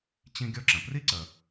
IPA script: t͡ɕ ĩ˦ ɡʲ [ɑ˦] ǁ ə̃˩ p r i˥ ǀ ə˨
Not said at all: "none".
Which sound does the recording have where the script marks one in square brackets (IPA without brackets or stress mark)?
ɔ˦